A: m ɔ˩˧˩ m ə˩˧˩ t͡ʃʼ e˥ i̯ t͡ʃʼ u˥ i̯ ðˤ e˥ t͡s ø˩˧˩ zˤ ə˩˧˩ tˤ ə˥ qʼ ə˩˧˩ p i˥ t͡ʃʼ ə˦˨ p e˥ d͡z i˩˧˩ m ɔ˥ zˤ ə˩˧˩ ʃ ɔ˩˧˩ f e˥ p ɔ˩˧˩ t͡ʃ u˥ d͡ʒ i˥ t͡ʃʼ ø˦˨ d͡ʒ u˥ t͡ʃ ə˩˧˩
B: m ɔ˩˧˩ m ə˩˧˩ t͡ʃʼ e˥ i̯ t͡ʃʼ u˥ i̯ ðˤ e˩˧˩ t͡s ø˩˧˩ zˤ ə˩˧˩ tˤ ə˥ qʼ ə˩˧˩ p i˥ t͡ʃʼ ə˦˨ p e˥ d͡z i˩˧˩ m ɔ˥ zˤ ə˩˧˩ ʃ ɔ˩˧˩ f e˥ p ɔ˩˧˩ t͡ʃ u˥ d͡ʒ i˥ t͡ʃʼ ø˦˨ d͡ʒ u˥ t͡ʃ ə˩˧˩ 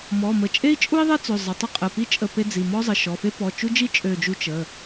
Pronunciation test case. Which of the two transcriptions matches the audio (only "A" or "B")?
A